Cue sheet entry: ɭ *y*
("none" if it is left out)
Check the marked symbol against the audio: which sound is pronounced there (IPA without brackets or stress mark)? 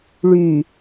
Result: y